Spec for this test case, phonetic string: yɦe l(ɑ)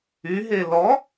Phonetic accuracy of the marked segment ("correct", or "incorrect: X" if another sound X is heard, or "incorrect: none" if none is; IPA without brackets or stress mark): incorrect: ɔ